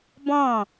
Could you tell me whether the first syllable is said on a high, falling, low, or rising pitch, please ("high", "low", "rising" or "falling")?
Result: falling